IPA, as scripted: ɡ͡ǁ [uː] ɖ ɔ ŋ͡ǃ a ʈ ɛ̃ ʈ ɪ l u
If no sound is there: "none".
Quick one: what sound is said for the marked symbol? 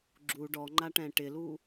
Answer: u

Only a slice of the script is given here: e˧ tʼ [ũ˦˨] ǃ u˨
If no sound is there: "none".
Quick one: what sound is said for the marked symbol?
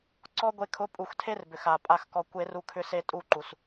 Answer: u˦˨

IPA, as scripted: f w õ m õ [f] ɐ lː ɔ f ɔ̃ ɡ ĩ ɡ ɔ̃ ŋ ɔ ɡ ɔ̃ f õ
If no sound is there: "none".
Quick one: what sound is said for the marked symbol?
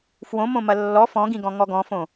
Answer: m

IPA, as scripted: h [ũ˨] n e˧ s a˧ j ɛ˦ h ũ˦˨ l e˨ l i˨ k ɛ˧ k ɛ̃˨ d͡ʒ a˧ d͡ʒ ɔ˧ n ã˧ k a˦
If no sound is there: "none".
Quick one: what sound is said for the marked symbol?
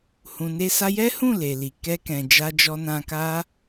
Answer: ũ˨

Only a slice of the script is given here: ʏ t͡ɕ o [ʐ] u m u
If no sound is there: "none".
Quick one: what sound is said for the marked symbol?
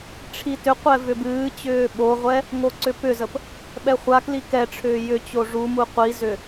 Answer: ʐ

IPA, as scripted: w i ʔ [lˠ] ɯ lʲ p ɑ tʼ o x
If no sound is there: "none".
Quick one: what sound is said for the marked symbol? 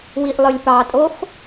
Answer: lˠ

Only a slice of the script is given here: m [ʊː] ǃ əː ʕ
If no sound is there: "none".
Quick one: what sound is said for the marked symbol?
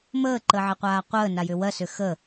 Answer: əː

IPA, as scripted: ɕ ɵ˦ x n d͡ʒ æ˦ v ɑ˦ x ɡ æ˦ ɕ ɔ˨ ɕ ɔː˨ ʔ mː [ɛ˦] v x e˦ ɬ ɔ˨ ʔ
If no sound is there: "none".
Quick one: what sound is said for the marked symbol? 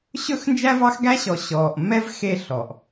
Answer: ɛ˦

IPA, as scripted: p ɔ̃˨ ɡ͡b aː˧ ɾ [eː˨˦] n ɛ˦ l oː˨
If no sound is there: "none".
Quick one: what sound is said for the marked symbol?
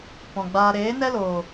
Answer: eː˨˦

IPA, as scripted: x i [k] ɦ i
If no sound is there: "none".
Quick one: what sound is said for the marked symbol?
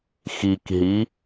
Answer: k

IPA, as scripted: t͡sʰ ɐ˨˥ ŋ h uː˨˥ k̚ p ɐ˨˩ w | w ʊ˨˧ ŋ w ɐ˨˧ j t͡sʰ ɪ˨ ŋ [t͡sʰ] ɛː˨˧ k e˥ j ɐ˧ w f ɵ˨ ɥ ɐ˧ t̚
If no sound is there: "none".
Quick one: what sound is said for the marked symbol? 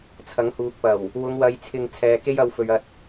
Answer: t͡sʰ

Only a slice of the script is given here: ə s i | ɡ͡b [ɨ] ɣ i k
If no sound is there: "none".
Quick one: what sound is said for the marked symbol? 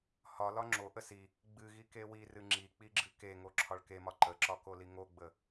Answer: ɨ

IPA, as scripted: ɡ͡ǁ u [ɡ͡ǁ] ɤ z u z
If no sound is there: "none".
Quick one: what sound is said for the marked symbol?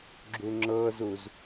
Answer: ŋ͡ǁ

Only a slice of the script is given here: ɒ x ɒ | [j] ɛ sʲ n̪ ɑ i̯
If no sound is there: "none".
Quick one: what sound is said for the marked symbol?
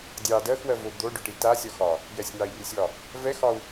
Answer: j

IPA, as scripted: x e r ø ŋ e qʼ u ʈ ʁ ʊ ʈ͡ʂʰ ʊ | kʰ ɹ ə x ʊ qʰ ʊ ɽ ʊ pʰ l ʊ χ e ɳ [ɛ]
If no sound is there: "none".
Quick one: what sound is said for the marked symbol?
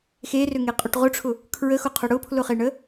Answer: ə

